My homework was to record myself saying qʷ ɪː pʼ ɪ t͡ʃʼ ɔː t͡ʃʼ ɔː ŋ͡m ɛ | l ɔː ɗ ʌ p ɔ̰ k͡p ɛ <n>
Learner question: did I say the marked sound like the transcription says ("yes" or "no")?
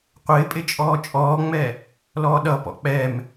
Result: no